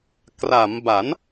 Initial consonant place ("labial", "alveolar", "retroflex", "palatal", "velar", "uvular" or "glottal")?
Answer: velar